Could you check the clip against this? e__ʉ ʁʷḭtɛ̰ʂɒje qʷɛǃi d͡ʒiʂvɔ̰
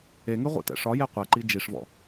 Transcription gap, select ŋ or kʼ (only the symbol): ŋ